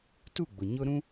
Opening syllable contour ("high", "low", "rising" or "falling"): falling